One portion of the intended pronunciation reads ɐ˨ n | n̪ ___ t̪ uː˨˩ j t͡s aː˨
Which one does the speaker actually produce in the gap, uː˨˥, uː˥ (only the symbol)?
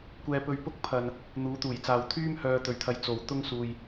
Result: uː˨˥